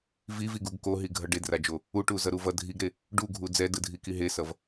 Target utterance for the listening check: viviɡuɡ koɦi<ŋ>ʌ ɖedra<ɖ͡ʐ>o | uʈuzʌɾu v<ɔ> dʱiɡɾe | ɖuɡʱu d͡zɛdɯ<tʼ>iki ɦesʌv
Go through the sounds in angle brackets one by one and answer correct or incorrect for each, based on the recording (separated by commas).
incorrect, incorrect, incorrect, incorrect